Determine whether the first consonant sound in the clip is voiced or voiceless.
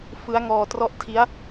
voiceless